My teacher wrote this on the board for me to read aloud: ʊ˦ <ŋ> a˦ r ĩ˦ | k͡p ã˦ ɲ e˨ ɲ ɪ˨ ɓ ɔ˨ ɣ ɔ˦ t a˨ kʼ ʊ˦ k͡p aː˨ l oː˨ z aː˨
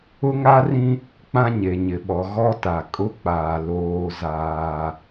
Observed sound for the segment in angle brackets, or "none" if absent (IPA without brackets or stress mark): ŋ